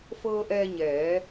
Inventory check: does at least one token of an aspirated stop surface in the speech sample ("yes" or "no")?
no